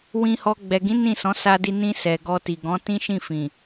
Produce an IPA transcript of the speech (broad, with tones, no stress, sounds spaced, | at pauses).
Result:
w ĩ˧ h ɔ˧ ɡ͡b ɛ˨ ɡ ĩ˨˦ n ĩ˦˨ s ɔ̃˨˦ s a˧ d i˧ n ĩ˧ s ɛ˨ ɡ ɔ˧ t i˨ ɡ ɔ̃˨˦ t ĩ˦ ʃ ĩ˦˨ f ĩ˨